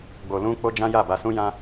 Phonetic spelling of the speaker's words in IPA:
ɡ͡b o˧ l ũ˦ k͡p o˦ d͡ʒ ã˦ j a˦˨ b a˧ s ũ˦ j ã˦

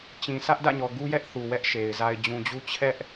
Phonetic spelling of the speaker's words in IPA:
t͡ɕ ĩ˨ s ä˦ ʔ d ä̰˦˨ ɲ ɔ˨ ɡ u˦ j ɛ˦ ʔ θ u˨ w ɛ˦ ʔ ʃ e˨ ɪ̯ z a˨ ɪ̯ d͡ʑ ũ˨ d͡ʑ u˦ t͡ɕʰ ɛ˦ ʔ

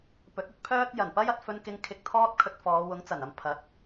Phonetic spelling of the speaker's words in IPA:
p ɵ˨˥ t̚ ɵ˨˥ t̚ pʰ œː˥ t̚ j ɐ˨˩ n p ɐ˥ j ɐ˧ t̚ f ɵ˥ n k ɪ˥ ŋ kʰ ɪ˧ k̚ t̪ʰ ɔː˥ t̚ kʰ ɵ˧ t̚ f ɔː˨˧ w ʊ˨˥ ŋ t͡s ɐ˨˩ n ɐ˧ m pʰ ɐ˨˥ t̚

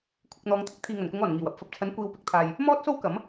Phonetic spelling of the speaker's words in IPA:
kʷʰ ɪ˧ k̚ n̪ ɔː˨˧ ŋ t̪ʰ ɪ˥ k̚ t̪ʰ iː˨ ŋ ɐ˨˩ n k ʊ˨˧ ŋ ɔː˨˩ n ŋ iː˨˩ w ɐ˧ p̚ f ɐ˨ p̚ t͡sʰ ɐ˨˥ n kʷ iː˧ w p ɪ˨˥ k̚ t̪ʰ aː˧ j | m ɔː˥ t̚ s o˥ w k ɐ˨˥ m

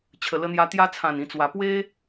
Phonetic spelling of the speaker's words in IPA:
t͡ɕʰ ə˨˩ l ə˧ n̪ j a˧ t̪ j a˧ t͡sʰ ã˨˩ n ĩ˨˩ t͡s w a˨˩ p w e˦

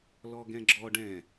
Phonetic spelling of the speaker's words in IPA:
l ɔ ɡ ɛ̃ ɡ͡ǁ ɔ ɖ ɛ̃

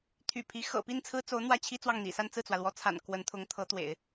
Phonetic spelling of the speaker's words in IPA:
t̪ʰ y̰˨˩ pʰ i˧˥ x ɤ̰˨˩ p i˥˩ n t͡sʰ ɹ̩˥ t͡s o˧˥ ʊ̯ n̪ w ä˥˩ t͡ɕʰ i˥ t͡s w ɑ˥˩ ŋ n̪ ḭ˨˩ s a˥˧ n t͡s ɹ̩˥˩ t͡s w ä˩ l w ɔ˧˥ t͡sʰ a̰˨˩ n k w ə˧˥ n t̪ʰ ʊ˧˥ ŋ t̪ʰ ɤ˧˥ t̪ w ḛ˨˩˦ ɪ̯

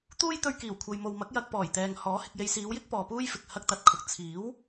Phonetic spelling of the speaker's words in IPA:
t̪ uː˥ j t̪ ɵ˧ ɥ k iː˨˩ w kʷʰ ɐ˨ j m o˨ w m ɐ˨˥ k̚ j ɐ˨ k̚ p ɔː˨˩ j t̪ ɛː˧ ŋ h ɔː˨˥ h ɪ˨ k̚ j e˨ j s iː˨˧ w j ɪ˥ k̚ p ɔː˨ p uː˥ j f ɪ˨ k̚ h ɐ˧ k̚ t̪ ɐ˨ t̚ kʰ ʊ˨ k̚ t͡sʰ iː˨˥ w

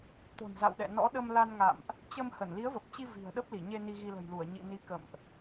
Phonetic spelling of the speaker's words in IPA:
t̪ o̤˨˩ n z a̰˧˨ w ɗ ɛ̰˧˨ n ɔ̰˧˥ ɗ ə˧ m l a˧ n ŋ a̰˧˨ m ʔ | t͡ɕ ə˧ m h ə˧˩ n l i˨˦ ə̯ v ə˨˩ p̚ t͡ɕ i˧ v i̤˨˩ ə̯ ɗ ə˦˥ p̚ l i˧˩ ɲ e˧ n i˧ ɣ i˧ l ə̤˨˩ j l u˧˩ ə̯ ɲ ḭ˧˨ n i˨˦ k ə̰˧˨ m ʔ

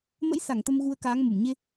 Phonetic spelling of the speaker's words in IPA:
m ə̰˧˥ j s a˧˩ ŋ t̪ ə˧ m ɣ u˧ ə̯ k aː˨˦ ŋ m u˧˩ m ɲ e˧

